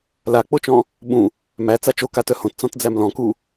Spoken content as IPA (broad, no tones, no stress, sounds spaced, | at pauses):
l a k͡p o t͡ʃ ɔ̃ | ɓ ũ | m æ t͡s a t͡ʃ o k a t œ h õ t t͡s ɔ̃ t d͡z æ m l ɔ̃ k u